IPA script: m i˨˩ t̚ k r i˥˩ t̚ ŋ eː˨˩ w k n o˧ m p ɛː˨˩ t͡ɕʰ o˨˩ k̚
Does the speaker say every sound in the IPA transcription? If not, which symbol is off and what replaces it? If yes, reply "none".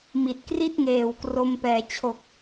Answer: n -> r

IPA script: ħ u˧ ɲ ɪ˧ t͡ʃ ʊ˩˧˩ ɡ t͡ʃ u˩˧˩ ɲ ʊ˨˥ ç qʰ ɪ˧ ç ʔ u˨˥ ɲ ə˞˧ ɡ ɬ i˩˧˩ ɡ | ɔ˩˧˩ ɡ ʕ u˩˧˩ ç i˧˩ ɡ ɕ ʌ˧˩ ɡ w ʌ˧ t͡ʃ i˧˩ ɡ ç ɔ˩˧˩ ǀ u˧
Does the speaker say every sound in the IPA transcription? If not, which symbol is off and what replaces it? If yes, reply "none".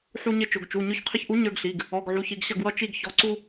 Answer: none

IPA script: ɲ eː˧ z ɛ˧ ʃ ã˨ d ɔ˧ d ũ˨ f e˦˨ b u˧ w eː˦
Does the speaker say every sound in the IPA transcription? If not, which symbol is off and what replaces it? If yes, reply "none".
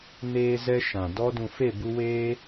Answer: ɲ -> n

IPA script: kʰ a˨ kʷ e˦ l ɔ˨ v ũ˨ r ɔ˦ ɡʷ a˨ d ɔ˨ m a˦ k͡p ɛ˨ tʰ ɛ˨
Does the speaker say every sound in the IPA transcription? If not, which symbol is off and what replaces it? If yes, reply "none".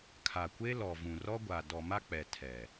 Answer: none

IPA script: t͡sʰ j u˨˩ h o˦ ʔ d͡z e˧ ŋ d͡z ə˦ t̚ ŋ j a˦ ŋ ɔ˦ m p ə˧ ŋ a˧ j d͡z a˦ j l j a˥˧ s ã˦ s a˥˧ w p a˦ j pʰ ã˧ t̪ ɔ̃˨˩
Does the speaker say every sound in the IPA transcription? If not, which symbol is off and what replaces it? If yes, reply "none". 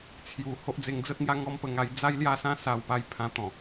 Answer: none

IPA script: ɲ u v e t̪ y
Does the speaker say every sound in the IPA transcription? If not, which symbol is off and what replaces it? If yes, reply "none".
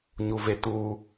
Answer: y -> u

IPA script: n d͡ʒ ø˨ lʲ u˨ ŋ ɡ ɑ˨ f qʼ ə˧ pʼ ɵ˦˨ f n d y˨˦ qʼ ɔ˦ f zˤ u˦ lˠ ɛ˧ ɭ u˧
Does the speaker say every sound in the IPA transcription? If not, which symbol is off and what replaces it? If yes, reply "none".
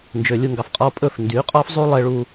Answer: ə˧ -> ɔ˧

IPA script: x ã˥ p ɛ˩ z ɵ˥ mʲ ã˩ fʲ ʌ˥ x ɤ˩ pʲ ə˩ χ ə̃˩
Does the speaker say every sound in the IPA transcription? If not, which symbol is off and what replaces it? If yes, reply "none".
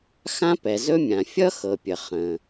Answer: none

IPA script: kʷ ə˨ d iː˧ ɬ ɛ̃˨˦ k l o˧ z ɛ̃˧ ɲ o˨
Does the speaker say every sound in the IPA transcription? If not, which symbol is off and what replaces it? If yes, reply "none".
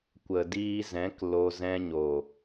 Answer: ɬ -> z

